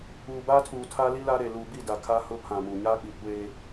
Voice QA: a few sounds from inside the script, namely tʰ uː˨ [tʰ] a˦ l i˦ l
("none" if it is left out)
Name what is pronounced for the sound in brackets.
tʰ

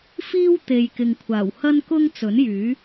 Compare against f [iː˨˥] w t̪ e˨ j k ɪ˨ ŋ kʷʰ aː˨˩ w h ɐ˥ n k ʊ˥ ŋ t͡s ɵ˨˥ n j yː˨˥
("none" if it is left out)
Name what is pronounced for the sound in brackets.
iː˥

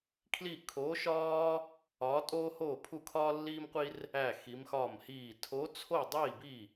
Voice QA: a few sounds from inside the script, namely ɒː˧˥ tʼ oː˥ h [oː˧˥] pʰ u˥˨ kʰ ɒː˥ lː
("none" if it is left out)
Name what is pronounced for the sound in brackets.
oː˥˨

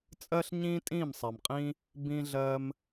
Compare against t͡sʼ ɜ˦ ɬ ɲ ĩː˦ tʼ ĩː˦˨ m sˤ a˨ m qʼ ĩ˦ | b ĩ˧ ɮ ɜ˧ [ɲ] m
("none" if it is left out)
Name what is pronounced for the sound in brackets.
none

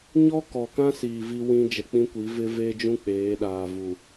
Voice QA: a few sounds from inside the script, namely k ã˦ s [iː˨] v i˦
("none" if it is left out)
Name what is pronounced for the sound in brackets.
iː˨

